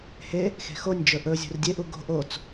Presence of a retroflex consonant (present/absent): absent